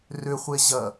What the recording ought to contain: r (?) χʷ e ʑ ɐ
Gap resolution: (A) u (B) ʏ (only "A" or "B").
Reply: B